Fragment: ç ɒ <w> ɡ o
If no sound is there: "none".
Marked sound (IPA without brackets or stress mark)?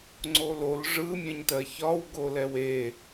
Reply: w